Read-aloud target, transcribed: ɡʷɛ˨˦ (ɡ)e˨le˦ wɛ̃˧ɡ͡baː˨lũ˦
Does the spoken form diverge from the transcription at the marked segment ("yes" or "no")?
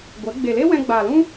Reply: yes